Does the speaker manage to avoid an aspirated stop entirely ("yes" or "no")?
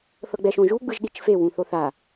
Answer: yes